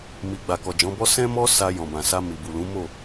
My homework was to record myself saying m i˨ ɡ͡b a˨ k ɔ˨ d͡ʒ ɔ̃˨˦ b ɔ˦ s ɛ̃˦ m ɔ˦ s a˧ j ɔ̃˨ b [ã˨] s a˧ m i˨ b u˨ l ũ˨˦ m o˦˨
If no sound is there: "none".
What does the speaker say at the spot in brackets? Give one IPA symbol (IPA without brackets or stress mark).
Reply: ã˨